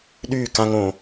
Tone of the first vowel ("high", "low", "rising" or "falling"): falling